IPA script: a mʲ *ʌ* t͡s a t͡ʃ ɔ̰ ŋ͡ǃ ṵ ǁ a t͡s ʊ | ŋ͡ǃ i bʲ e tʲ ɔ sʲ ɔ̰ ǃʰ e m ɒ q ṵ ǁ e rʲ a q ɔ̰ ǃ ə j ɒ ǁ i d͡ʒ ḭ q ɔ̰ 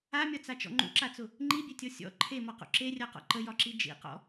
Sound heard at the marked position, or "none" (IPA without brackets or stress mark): ɒ